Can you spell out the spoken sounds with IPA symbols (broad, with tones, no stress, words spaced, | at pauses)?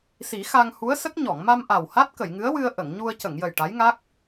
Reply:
si˨˩˦xa˧ŋhu˧˥ə̯sə˦˥k̚ ɲɔ˨˩˨ŋma˧mʔa˨˩w ha˦˥t̚kə˨˩˨jŋɨ˧˥ə̯ wɨ˧ə̯ʔə˨˩˨ŋɲu˧ə̯ cə˨˩˨ŋjə˨˩j ʈa˧˥jŋa˦˥k̚